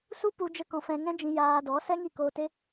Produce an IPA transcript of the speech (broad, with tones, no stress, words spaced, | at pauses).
su˦pu˧ d͡ʒə˦kɔ̃˧fɛ̃˧ ŋɛ̃˦d͡ʒĩ˧ jaː˧dɔ˨˦ sɛ˦ŋi˦˨koː˧te˦